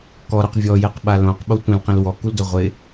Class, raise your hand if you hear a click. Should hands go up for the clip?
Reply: no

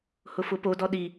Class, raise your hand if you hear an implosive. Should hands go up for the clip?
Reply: yes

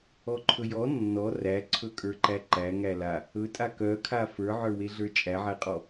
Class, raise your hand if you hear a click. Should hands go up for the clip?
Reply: yes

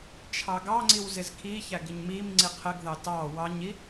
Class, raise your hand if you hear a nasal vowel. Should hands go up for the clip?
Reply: no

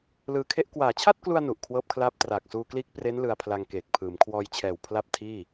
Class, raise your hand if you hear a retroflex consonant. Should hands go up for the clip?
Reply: no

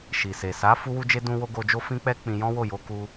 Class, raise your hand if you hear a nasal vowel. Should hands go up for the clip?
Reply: yes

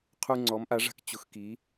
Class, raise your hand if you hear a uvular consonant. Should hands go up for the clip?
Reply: yes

